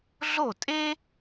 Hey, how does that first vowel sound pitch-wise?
falling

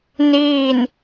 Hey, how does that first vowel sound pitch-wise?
falling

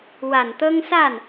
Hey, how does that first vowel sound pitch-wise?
low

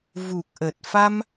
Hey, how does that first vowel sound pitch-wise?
low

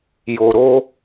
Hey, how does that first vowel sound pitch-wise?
low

